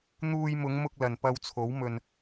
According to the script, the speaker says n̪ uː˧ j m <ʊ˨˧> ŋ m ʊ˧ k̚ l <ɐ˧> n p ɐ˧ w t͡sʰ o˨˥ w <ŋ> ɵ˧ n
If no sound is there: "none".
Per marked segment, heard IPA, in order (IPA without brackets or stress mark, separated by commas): ʊ˨˧, ɐ˨, m